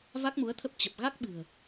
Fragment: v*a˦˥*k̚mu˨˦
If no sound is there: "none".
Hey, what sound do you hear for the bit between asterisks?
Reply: a˦˥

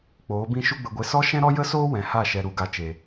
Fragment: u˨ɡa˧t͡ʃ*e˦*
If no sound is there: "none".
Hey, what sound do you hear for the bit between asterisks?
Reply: e˨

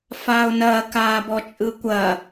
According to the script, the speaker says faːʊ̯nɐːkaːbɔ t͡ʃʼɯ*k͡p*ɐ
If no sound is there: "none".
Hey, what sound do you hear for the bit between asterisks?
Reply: kʷ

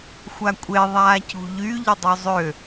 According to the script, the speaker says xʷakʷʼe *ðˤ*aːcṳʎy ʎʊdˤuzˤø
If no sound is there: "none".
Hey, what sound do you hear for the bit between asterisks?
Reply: ðˤ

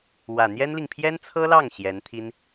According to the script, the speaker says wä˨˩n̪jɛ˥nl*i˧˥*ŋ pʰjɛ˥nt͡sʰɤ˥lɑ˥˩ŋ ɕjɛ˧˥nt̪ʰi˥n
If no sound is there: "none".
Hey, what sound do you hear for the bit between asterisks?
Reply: i˨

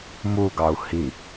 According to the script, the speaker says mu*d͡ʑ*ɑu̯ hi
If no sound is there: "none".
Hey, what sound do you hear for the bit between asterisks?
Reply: ɡ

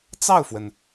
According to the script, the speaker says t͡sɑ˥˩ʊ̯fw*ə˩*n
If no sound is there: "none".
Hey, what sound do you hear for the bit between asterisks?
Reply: ə˩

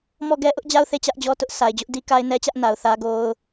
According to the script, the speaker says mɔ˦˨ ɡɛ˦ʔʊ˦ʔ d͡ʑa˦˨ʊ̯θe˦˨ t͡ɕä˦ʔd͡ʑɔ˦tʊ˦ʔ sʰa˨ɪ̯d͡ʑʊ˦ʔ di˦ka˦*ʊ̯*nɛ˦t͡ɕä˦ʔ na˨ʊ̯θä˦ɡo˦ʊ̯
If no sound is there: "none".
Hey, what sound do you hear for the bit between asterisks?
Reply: ɪ̯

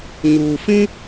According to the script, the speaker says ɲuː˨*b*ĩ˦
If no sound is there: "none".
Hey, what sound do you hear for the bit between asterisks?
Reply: f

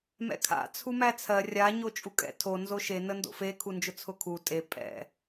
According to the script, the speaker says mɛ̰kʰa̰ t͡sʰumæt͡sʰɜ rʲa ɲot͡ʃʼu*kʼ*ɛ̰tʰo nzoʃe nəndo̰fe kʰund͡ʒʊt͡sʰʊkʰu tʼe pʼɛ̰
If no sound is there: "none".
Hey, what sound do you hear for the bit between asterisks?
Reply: kʼ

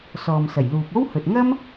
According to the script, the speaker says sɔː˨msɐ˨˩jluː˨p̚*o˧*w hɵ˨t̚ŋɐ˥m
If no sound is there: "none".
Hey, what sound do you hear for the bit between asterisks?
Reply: o˥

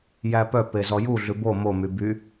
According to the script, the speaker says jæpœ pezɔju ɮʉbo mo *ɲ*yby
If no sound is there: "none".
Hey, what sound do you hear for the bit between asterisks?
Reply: m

